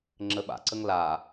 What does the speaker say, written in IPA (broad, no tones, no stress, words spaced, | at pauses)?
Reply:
ŋ͡ǁəɓa̰ǀəŋ la